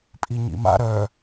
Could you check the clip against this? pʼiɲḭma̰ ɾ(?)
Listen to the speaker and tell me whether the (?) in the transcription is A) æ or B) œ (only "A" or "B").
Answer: B